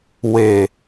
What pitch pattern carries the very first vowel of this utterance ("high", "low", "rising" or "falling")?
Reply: low